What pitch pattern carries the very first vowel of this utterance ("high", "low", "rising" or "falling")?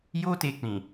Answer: high